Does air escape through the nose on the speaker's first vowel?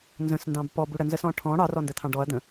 yes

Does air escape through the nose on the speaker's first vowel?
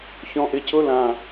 yes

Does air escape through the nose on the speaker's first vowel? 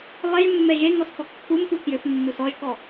no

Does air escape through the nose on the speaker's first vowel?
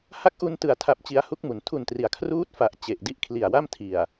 no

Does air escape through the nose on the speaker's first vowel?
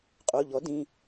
no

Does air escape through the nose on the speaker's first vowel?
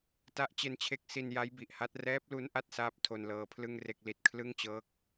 no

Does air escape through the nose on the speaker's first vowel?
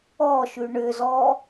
no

